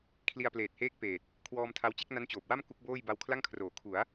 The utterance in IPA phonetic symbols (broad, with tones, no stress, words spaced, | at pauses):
kʰli˧a̯pleː˨˩t̚heː˦˥k̚ peː˨˩t̚ | kʰwɔː˧mtʰa˧wt͡ɕe˥˩k̚ na˦˥nt͡ɕoː˨˩p̚ wa˥˩m ku˦˥k̚boː˥˩j ba˧wkʰla˥˩ŋkʰroː˩˦ kʰu˩˦a̯